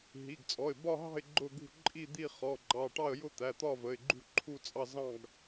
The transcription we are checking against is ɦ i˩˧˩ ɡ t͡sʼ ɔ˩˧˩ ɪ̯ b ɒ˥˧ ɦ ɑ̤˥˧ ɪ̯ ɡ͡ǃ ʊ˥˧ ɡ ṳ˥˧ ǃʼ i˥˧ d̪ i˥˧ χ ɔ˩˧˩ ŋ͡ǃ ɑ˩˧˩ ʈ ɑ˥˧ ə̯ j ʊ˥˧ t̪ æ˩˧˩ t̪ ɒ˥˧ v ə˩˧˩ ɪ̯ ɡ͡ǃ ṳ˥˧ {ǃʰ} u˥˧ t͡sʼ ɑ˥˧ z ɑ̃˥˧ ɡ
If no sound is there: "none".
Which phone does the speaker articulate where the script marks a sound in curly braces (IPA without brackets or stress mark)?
ǃʰ